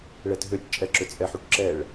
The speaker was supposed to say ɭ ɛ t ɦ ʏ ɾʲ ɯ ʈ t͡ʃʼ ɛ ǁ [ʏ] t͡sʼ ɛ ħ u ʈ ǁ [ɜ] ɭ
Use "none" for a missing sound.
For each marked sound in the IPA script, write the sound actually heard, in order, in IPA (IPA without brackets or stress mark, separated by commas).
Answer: ʏ, ɛ